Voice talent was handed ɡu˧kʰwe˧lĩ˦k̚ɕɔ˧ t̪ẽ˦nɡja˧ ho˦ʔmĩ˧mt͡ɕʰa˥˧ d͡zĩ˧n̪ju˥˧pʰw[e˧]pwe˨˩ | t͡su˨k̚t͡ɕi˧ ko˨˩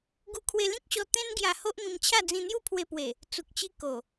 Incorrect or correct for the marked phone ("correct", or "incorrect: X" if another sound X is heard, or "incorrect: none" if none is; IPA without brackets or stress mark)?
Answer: correct